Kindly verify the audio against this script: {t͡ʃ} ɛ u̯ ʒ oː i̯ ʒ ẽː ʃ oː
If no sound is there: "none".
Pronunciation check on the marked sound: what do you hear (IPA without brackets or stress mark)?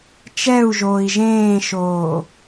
t͡ʃ